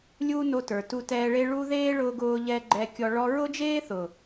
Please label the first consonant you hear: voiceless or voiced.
voiced